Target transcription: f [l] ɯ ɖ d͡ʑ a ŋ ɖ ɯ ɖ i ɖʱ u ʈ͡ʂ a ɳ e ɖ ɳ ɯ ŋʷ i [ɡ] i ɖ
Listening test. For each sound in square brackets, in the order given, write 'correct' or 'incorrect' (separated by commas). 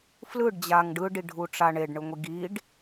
correct, correct